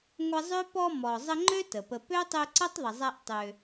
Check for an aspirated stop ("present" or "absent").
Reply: absent